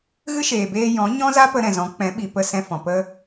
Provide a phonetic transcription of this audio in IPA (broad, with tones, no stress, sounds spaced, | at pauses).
ɣ ɨ˦ ʃ eː˨ b eː˧ j ɔ̃˨˦ ɲ ɔ̃˦ z a˦ p ə˧ ɾ ɛ̃˨ z ɔ̃˨˦ k͡p ɛ̃˨˦ ɓ i˨ p ə˧ s ɛ̃˧ f ɔ̃˨ p ə˦